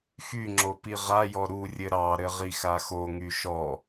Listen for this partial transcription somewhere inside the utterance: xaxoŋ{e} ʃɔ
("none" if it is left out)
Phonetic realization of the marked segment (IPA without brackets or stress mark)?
y